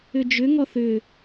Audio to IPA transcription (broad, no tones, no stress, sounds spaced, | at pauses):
ʏ d͡ʒ ʏ ŋ ɔ θ ʏ